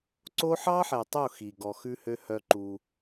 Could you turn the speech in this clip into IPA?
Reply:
ǀ o˦ ħ ɑ˦ ħ ɛ˨ tˤ o˦˨ x i˨ ɡ ɔ˨ x ʉ˦ h ø˦ h œ˦ ǃ u˦

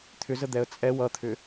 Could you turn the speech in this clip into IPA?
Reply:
t̪ʰ ʏ z ə d̪ ɛ ə̯ t͡sʼ ɛ w ʌ t̪ʰ ʏ

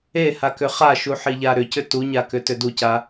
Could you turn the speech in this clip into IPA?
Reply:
e h a k ʏ χ a ʃ u ħ i ʎ a ɾ ʏ c ʏ t u ɲ a k ʏ t ʏ d u c a

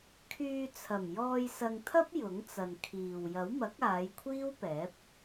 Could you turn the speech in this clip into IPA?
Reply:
kʰ yː˧ t͡sʰ ɐ˨˩ m j ɔː˧ j s ɐ˧ ŋ t̪ʰ ɐ˥ p̚ j ʊ˨˥ ŋ t͡s ɐ˨ n kʰ iː˨ w j ɐ˨˥ w m ɐ˨˥ k̚ aː˨˧ j kʷʰ iː˥ w p ɛː˨˥ p̚

